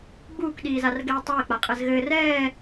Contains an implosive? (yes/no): yes